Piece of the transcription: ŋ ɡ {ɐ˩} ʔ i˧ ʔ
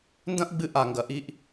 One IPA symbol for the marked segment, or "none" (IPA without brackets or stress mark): ɐ˩